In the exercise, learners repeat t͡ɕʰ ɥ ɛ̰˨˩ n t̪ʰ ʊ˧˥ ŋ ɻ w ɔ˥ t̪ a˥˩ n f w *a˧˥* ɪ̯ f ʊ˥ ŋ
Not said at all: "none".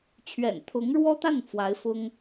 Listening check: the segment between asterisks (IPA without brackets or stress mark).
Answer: a˧˥